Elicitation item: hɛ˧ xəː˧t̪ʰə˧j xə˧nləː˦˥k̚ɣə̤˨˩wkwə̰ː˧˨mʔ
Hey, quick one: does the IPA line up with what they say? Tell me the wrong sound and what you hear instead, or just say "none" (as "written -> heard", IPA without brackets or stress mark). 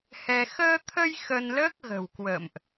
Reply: none